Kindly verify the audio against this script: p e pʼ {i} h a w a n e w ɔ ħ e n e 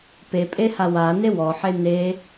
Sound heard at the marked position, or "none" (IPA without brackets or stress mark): e